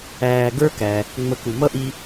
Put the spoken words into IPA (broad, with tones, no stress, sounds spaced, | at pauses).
æː˨ ɡ ə˞˦ k æ˩ | ŋ͡m ə˨ k u˩ m ʌ˥ ʔ i˦